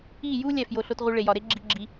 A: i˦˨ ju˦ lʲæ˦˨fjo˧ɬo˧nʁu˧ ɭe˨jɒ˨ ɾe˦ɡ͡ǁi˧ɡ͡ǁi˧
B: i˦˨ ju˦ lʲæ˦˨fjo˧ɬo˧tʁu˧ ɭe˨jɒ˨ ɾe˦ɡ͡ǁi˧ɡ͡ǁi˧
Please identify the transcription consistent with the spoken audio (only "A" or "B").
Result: B